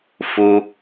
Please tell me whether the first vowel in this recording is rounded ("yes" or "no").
yes